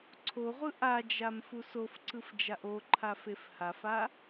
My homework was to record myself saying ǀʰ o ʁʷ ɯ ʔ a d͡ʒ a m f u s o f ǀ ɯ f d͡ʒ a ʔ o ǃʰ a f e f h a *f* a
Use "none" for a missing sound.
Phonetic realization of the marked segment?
f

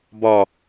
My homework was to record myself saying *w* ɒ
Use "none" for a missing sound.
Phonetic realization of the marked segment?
b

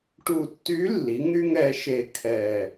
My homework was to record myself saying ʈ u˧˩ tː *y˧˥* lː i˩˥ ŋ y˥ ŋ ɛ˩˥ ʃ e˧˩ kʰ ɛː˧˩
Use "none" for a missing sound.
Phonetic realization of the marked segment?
y˧˥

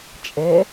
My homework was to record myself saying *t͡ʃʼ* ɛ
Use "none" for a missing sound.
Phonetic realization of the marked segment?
t͡ʃʼ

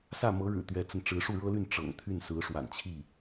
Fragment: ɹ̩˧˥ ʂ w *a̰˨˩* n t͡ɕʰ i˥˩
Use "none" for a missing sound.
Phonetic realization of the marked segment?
a̰˨˩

